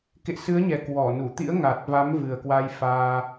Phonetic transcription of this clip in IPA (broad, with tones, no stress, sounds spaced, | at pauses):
k ḛ˧˨ s ɨ˨˦ ə̯ ɲ ɛ˨˩ k w ɔ˧˩ n u˧˩ t̪ ḭ˧˥ ə̯ ŋ a˨˩ t̚ v a˨˦ m v ɨ˨˩ ə̯ k w a˧ j f aː˧